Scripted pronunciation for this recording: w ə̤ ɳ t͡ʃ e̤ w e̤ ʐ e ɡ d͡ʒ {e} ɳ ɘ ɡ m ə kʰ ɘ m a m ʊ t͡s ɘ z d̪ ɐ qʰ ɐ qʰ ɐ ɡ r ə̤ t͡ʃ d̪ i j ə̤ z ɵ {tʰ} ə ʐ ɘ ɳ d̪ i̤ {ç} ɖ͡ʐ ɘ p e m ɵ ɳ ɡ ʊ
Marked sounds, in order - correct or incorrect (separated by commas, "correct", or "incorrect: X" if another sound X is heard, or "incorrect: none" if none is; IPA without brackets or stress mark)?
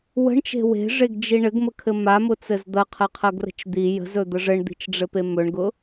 incorrect: i, incorrect: d̪, incorrect: t͡ʃ